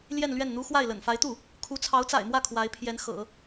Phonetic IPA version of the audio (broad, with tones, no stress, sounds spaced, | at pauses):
l j ɛ˥˧ n l ɥ ɛ˥˩ n n̪ u˥ x w a˥˩ ɪ̯ l ə̰˨˩ n f a˧˥ ɪ̯ t̪ u˥˩ | kʰ u˧˥ t͡sʰ ɑ˧˥ ʊ̯ t͡s a̰˨˩ ɪ̯ m w ä˥˩ kʰ w a˧˥ ɪ̯ pʰ j ɛ˧˥ n x ɤ̰˨˩˦